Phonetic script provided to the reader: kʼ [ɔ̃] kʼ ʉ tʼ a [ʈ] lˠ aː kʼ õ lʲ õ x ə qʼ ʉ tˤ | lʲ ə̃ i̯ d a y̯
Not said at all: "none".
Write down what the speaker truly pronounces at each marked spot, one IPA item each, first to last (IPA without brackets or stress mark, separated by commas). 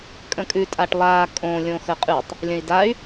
ə̃, ʈ